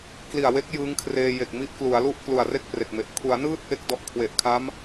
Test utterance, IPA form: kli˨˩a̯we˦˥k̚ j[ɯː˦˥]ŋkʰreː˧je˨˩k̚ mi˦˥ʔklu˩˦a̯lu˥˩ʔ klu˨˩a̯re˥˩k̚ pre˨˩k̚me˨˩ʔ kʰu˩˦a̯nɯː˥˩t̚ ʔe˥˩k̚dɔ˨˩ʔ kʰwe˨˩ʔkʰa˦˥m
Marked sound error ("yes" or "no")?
no